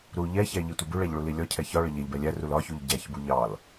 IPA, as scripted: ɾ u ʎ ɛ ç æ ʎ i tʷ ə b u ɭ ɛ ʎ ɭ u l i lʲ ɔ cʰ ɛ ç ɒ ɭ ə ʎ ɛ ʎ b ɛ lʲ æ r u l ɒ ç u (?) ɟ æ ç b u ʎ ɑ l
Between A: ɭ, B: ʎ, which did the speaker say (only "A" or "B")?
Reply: B